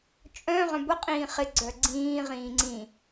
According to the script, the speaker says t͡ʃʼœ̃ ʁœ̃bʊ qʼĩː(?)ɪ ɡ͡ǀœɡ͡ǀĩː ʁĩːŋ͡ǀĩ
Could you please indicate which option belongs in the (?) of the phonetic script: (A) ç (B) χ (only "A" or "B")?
B